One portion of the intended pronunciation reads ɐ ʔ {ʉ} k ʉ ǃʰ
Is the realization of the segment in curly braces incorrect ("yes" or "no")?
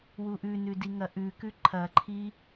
no